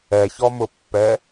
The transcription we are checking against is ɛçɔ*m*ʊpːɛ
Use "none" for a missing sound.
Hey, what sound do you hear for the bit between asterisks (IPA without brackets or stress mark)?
m